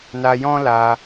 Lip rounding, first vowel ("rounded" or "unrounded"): unrounded